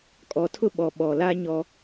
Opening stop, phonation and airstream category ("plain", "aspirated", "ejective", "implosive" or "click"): ejective